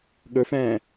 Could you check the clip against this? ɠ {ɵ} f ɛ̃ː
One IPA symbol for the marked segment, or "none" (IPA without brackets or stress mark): ɵ